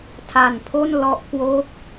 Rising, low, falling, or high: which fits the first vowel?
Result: low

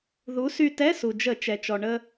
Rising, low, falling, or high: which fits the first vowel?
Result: rising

